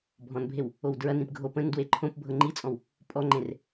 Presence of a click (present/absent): present